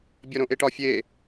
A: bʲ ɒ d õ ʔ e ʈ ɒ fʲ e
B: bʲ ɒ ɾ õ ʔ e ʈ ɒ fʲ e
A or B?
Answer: B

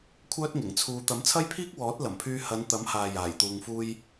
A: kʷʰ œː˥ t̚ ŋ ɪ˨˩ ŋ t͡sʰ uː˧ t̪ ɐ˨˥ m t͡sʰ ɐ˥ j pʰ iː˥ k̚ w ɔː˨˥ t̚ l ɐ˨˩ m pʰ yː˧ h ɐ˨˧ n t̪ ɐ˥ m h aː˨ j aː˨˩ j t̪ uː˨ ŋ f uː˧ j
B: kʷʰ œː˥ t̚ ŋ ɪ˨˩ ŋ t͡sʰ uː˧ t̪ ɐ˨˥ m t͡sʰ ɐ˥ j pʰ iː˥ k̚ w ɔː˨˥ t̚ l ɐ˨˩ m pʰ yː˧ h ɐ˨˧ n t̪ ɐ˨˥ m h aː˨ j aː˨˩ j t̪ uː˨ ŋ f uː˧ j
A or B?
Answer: B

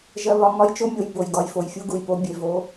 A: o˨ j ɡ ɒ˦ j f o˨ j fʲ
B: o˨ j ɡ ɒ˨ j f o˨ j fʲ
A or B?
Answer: B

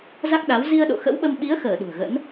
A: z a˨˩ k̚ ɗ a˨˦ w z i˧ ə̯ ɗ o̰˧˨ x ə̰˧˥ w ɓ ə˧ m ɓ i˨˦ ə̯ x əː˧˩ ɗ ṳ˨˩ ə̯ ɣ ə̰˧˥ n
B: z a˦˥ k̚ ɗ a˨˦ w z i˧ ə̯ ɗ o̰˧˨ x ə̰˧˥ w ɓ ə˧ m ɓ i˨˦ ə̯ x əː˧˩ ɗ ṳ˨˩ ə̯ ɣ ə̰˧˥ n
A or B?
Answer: B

